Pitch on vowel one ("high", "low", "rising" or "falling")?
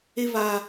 high